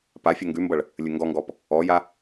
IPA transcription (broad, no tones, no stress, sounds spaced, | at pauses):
p a fʲ ʌ ŋ ɡ ʉ m b ʌ ɭ | lʲ ɘ ŋ ɡ ɔ ŋ ɡ ɔ p | ɔ j a